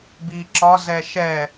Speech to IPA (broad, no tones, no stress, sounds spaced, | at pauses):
b i ǁ ɒ z ɛ ʃ ɛ